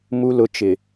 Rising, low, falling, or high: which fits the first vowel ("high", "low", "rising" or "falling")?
low